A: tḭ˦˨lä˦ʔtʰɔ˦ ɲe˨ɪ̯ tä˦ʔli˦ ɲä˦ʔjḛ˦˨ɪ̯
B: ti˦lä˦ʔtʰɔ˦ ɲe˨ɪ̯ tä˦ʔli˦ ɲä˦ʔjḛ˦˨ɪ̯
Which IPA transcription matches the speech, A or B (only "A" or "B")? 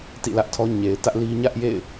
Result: A